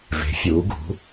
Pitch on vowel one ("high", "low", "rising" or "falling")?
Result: rising